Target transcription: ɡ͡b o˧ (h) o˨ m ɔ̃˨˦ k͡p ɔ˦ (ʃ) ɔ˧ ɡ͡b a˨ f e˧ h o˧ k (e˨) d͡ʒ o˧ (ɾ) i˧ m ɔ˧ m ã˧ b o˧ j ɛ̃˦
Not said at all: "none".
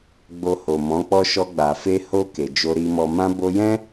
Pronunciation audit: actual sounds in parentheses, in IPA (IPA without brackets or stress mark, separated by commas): h, ʃ, e˨, ɾ